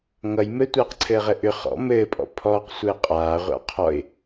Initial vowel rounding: unrounded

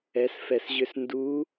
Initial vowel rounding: unrounded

